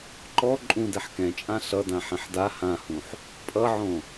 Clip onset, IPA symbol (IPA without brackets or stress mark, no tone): ǃ